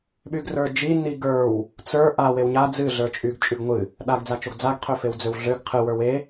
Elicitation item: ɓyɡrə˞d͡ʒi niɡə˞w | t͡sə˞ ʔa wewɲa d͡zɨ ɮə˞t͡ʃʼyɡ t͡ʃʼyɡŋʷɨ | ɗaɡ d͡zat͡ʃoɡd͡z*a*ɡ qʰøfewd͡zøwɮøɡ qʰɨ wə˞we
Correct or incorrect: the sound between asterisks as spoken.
correct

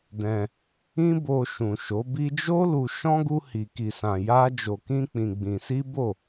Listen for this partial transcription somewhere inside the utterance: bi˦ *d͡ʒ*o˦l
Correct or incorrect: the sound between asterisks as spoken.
correct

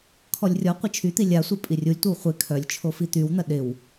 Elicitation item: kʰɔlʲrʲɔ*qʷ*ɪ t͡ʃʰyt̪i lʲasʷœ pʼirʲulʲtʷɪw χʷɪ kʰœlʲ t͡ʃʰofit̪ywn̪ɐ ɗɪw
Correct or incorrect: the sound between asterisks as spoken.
correct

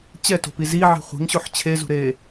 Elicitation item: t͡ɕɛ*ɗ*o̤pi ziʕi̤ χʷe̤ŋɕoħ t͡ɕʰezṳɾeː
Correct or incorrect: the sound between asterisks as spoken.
incorrect: t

